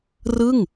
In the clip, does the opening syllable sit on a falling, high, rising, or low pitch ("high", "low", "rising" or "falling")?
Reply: falling